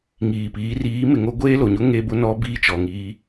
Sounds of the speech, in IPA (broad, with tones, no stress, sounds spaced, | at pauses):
ŋ iː˨ p iː˨˦ r iː˨˦ m ɪ˨ ŋ o˦ ɡʷ eː˦ l o˨ ɲ ʊ˦ ŋ e˦ b ʊ˦ n ɔ˦ b iː˦ t͡ʃ ɔ˨ ŋ iː˦